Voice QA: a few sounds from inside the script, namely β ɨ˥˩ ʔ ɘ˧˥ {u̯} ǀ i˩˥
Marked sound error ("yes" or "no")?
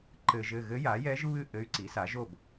yes